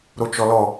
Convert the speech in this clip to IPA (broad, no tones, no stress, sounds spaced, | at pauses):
ɾ o t͡ʃ ɔ l ɔ